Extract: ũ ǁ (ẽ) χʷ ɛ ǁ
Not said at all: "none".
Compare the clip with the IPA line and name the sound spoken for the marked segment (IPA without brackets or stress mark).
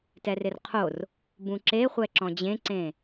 e